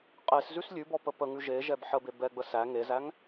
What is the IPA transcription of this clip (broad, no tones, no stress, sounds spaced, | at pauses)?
qʼ e s z ʉ s lʲ ʉ b ɔ p ə p ə ŋ ʉ ʒ e ʒ ɛ b ħ ə b e b ɛ ɡ͡b ə s æ ŋ e z æ ŋ